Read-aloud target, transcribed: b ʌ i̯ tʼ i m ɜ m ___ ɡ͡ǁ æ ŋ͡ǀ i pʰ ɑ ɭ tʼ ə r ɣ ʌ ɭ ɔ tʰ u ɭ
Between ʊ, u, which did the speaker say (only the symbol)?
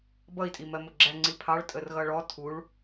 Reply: ʊ